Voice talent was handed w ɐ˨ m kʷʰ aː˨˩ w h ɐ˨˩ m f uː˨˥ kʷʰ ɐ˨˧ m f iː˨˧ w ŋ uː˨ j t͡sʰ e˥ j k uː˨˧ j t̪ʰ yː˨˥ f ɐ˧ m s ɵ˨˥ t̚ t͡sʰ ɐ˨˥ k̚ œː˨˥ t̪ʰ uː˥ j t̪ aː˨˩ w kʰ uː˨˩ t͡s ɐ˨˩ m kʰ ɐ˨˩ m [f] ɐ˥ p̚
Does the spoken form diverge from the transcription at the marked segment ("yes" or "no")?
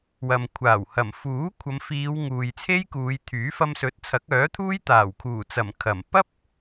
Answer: yes